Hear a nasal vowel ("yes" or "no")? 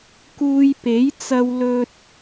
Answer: no